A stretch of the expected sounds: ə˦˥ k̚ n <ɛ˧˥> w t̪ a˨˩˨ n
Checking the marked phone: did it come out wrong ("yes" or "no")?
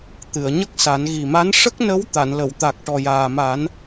yes